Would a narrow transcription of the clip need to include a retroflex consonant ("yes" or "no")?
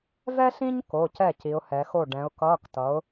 yes